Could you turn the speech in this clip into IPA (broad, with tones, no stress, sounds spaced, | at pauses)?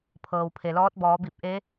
pʰ ɤː˩ w pʰ e˩ l ɔː˧˥ t̚ b ɔː˩˧ b i˧˩ p̚ ʔ e˧˥